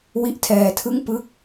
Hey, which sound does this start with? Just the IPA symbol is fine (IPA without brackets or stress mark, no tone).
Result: w